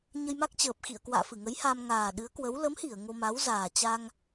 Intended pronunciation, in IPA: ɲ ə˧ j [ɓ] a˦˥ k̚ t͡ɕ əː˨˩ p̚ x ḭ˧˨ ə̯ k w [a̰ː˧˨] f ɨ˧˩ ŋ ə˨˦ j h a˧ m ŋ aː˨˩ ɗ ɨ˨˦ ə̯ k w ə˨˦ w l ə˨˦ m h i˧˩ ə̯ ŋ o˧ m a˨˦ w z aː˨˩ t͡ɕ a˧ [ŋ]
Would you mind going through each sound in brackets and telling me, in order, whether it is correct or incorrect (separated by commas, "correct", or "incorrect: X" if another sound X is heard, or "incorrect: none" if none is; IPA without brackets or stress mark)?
incorrect: m, correct, correct